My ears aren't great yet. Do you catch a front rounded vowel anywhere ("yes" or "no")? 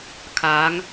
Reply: no